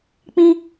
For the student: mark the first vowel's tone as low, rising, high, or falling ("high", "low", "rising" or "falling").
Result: high